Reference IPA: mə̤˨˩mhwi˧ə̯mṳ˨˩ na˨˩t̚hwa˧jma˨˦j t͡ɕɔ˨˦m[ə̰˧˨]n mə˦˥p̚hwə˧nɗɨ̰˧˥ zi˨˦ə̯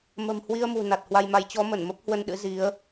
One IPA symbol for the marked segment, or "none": ə˧˩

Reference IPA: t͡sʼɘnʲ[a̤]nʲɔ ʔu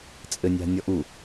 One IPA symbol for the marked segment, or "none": a̤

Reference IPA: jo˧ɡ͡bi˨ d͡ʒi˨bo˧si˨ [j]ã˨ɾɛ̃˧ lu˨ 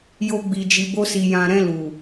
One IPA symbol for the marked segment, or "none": j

